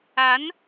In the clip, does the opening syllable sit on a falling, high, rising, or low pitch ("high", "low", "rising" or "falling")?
rising